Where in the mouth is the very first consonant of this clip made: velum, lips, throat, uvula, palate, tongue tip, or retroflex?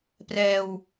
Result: lips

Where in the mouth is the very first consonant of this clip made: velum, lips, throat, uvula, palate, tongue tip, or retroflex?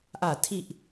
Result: throat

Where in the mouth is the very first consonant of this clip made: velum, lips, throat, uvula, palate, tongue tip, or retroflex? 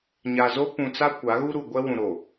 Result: palate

